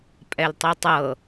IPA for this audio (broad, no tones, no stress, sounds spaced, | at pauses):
pʼ ɛ l tˤ i tˤ ɤ